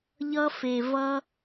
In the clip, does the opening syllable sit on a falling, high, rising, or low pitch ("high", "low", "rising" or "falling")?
high